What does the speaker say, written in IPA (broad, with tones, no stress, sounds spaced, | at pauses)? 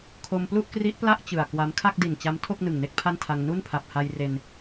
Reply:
kʰ o˧ m p l u˥˩ ʔ k r i˦˥ ʔ p l a˥˩ ʔ t͡ɕ ɯ˨˩ a̯ k w a˦˥ m kʰ a˥˩ k̚ d i˨˩ n t͡ɕ a˦˥ m tʰ o˥˩ k̚ n ɯ˨˩ ŋ n e˦˥ k̚ pʰ a˥˩ n tʰ a˧ ŋ n u˥˩ n pʰ a˨˩ p̚ h a˧ j r e˧ n